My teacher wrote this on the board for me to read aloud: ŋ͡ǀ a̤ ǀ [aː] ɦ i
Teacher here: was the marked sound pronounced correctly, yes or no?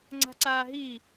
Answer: yes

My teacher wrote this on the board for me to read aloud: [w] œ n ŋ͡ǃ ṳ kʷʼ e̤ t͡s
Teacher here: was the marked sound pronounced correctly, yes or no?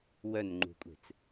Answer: yes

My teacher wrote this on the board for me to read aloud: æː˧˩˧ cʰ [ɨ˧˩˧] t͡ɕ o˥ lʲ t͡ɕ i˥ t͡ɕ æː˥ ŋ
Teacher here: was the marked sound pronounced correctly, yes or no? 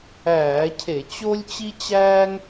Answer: no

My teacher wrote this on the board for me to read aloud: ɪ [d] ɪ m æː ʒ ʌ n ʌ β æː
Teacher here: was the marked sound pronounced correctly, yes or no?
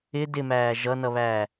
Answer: yes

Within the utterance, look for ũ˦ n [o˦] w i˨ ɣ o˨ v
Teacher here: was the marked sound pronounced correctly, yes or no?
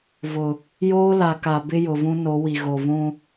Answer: no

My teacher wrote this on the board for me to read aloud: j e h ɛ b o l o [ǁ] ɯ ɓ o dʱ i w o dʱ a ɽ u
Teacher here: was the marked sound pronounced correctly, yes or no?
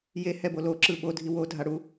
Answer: yes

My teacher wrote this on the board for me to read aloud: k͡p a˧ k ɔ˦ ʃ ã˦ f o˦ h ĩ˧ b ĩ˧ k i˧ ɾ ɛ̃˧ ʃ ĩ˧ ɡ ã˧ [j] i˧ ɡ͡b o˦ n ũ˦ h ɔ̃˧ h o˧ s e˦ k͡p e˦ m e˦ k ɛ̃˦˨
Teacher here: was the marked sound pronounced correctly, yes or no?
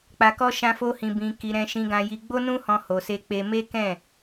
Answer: yes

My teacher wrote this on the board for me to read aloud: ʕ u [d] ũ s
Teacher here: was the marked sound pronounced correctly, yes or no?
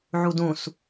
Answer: yes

